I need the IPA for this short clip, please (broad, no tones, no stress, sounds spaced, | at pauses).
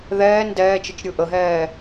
ð ɛː n d ɛː t͡ʃ ə t͡ʃ ɾʲ ɯ ʔ ə ɦ ɛː